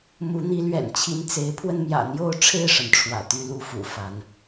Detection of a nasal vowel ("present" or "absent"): absent